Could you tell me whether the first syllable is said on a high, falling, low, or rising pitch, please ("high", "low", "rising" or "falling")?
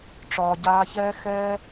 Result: low